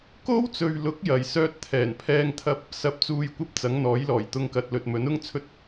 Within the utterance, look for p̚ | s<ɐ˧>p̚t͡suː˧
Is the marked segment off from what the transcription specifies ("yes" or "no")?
no